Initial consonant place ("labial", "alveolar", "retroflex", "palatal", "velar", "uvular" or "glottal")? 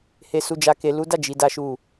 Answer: glottal